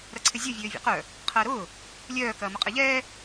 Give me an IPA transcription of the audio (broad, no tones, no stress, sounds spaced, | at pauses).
ɾ ɐ ǀʰ ɪ zʲ ɐ vʲ øː vʲ ɛ̰ q œ | qʰ ɐː ɾ ʊː | lʲ œː k ɐː m ʊ qʼ ɛ ʎ ɛː